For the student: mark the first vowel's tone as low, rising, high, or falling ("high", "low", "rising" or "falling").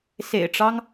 low